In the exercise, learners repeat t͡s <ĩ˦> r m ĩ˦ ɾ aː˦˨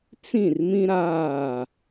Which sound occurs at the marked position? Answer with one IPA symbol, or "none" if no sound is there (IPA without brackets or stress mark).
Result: ĩ˦˨